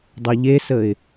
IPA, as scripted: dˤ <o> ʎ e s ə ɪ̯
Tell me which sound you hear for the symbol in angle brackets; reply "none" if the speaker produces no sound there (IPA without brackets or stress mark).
o